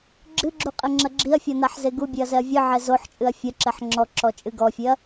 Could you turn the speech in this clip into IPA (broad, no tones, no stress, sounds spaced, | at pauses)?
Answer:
ɡ͡ǁ ɨ ɡ͡ǁ u qʼ ɛ ŋ͡ǁ ɐ ɡ͡ǁ i ɐ̯ fʲ ɔ n a ħ z e ɡ u bʲ e ɐ̯ z ɛ ɐ̯ vʲ ɨ ʕ ɛ z o ħ t͡ʃʼ ɨ ɐ̯ fʲ ɐ ǁ ɛ ħ ŋ͡ǁ ɔ ǁ ɔ t͡ʃʼ ɨ ɡ ɔ fʲ e ɐ̯